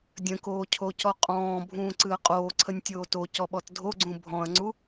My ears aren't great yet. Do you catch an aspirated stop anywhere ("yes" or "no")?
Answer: yes